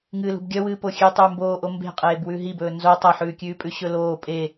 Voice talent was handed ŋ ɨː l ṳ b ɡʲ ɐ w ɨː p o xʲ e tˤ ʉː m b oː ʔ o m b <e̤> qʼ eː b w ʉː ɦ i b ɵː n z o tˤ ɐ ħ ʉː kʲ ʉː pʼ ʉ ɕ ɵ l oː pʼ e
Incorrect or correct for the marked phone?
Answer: correct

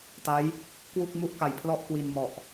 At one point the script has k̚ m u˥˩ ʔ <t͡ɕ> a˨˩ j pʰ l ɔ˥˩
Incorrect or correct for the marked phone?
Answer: incorrect: k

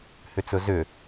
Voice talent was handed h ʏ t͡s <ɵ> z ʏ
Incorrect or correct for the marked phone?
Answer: correct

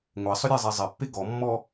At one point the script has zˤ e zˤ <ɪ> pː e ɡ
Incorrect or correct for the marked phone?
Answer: correct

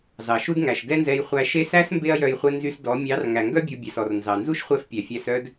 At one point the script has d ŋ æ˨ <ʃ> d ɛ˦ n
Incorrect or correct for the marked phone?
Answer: correct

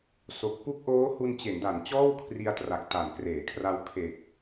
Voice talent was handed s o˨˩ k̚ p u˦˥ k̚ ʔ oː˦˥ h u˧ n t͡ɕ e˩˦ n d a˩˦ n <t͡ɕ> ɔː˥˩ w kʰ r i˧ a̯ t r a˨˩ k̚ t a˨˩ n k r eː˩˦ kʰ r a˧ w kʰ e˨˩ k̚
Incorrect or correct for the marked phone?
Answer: correct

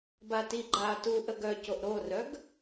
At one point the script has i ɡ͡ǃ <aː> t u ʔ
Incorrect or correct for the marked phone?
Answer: correct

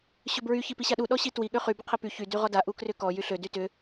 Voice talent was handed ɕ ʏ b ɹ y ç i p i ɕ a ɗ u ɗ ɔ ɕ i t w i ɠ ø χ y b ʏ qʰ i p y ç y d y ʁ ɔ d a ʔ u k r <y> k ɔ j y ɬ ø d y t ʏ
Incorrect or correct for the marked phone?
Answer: incorrect: ʏ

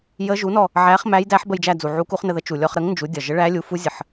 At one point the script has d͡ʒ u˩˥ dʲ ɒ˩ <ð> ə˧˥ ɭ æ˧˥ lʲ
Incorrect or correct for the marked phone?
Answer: incorrect: ʒ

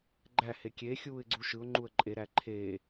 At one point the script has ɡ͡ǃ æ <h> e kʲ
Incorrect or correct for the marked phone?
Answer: correct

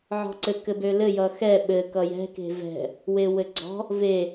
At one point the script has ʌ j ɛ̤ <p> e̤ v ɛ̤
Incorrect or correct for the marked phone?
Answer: incorrect: k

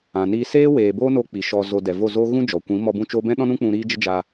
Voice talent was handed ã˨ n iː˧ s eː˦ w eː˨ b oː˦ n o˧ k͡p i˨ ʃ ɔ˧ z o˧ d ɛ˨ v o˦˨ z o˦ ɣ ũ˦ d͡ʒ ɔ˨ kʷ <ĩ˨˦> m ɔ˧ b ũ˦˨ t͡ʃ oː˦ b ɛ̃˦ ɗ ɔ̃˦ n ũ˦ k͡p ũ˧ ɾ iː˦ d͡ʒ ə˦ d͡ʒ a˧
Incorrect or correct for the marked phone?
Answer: correct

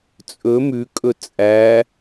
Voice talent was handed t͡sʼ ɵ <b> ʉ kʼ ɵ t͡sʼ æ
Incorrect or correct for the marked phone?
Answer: incorrect: m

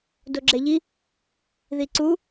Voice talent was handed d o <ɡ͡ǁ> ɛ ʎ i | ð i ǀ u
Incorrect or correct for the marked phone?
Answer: correct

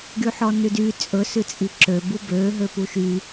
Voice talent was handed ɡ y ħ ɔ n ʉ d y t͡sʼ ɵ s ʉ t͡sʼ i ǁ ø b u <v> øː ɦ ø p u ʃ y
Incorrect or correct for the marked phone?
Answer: incorrect: b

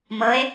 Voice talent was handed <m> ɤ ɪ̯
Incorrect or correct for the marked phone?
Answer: correct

